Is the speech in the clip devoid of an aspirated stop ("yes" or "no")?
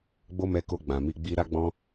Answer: yes